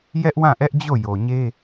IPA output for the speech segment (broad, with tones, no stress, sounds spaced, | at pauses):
j ɛ˦ ʔ w ã˦˨ ʔ ɛ˦ ʔ d͡ʑ o˦˨ j o˨ ɲ e˦